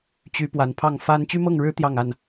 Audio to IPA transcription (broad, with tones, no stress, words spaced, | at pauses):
t͡ɕy˨˦ pwa˨˦npʰɑ˥˨ŋ fa˦n t͡ɕy˦mɤ˥˨ŋɻɻ̩˦ t̪jɑ˥˨ŋa˥˨n